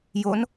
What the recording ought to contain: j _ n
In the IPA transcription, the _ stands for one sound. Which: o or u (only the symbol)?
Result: o